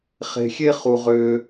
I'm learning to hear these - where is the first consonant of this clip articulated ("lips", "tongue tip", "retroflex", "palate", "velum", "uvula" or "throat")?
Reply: uvula